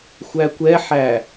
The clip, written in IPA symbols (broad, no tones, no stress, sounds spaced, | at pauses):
xʷ æ kʷ ɛ ħ æ